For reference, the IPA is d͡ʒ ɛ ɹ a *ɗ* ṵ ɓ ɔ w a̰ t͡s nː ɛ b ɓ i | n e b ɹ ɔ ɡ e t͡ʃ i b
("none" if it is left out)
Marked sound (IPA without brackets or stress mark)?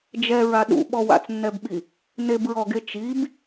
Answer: ɗ